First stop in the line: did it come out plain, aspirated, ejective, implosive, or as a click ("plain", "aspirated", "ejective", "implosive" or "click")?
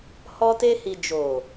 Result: plain